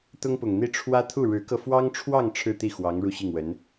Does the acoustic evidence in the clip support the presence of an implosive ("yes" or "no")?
no